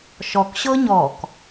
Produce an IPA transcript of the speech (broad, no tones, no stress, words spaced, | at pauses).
ʃɔkɕɤ ɲɔk